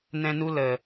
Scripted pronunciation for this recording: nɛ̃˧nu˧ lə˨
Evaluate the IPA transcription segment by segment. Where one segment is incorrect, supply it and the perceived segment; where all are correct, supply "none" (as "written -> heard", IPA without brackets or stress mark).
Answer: none